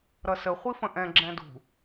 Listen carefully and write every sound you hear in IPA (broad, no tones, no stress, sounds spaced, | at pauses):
ɾ ʌ s ə χʷ i f ə̃ ʔ ɛ̃ ɡ͡ǁ ɛ̃ d ṳ